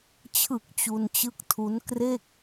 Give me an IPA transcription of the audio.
t͡ɕʰ ɯ˨˩ k̚ t͡ɕ u˧ n t͡ɕ ɯ˦˥ k̚ tʰ u˦˥ n k r e˥˩ k̚

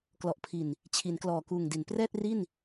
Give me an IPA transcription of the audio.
k l ɔ˨˩ ʔ pʰ i˨˩ n | t͡ɕʰ i˩˦ n k l ɔː˨˩ k uː˨˩ ŋ d i˩˦ n p r ɛː˥˩ t̚ r i˥˩ n

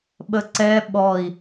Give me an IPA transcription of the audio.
ɓ ə ǀ ɛ ɓ ɔ i̯

